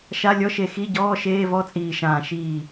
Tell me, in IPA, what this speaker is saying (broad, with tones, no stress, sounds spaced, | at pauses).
ʃ a˧˥˧ lʲ ɔ˧˥˧ ʃ e˧˩ x i˧˥˧ ɟ ɔː˧˥˧ ʃ eː˧˥˧ v ɔ˧˥˧ t͡sʼ iː˧˩ ʃ ãː˧˩ ʃ iː˧˩